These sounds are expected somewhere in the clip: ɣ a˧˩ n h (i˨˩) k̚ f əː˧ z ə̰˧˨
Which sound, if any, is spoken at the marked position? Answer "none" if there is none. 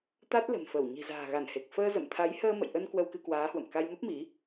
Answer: e˨˩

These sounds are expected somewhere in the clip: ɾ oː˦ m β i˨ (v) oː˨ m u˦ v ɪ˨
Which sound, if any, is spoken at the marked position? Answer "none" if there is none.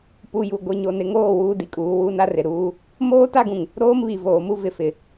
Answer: v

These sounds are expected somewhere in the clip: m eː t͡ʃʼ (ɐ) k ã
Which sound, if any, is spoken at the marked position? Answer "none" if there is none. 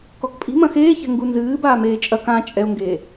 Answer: ɐ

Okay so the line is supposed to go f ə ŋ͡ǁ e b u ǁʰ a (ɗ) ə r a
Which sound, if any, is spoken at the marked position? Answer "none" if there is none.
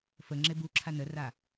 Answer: n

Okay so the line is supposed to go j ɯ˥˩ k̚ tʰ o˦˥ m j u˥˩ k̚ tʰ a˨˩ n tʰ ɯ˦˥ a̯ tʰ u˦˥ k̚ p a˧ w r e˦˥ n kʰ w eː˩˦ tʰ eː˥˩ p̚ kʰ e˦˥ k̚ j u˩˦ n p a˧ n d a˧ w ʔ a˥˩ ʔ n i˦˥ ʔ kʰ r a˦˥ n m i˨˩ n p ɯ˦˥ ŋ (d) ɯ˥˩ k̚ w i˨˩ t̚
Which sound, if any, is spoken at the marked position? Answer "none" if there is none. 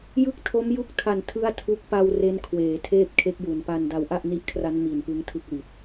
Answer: tʰ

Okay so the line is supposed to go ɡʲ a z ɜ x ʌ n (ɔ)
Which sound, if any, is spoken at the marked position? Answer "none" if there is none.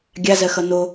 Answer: o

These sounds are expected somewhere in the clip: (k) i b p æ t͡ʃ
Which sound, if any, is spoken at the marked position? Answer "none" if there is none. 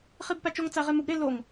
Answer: χ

